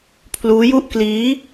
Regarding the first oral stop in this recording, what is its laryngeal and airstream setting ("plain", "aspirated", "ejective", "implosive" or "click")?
aspirated